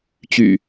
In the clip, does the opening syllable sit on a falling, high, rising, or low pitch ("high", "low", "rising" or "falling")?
low